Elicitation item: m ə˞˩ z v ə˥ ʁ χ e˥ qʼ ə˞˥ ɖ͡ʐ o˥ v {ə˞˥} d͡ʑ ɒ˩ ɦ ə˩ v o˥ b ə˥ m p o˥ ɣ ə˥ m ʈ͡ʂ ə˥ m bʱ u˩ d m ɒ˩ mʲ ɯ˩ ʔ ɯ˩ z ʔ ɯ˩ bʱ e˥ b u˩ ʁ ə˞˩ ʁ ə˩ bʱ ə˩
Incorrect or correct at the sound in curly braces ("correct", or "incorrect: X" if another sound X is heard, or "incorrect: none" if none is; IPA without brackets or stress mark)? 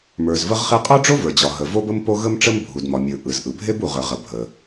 incorrect: ə˞˩